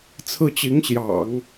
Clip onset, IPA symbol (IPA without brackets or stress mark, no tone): t͡sʰ